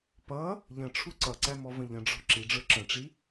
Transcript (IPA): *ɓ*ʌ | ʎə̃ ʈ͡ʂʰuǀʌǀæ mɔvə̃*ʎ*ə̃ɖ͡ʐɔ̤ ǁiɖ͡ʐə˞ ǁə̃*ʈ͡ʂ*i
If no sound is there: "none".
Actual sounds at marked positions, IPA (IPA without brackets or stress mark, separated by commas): p, ʎ, ʈ͡ʂ